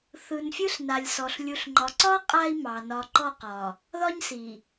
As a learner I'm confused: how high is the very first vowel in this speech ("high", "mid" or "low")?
high